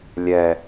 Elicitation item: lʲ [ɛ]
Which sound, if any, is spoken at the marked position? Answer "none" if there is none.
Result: ɛ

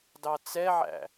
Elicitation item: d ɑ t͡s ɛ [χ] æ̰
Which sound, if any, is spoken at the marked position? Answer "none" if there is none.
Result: ʕ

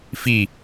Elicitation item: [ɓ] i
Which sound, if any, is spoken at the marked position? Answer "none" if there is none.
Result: f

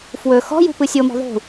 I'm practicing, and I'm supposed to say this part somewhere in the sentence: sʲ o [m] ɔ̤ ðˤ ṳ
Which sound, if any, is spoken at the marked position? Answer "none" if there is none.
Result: m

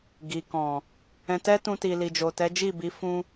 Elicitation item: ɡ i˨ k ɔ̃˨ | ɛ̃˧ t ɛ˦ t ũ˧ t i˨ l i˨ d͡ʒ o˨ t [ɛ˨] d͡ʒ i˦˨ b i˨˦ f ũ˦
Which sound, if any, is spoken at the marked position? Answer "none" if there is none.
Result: ɛ˨˦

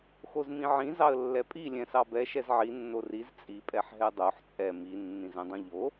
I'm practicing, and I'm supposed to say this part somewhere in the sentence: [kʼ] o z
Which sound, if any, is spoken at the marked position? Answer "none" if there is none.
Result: x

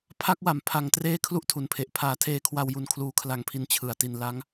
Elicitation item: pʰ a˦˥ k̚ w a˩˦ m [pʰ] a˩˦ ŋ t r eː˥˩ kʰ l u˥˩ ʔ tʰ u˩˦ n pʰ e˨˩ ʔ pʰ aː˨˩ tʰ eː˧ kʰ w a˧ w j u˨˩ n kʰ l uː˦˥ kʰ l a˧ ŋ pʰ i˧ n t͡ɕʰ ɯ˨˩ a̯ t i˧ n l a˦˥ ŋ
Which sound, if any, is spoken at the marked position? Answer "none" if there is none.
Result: pʰ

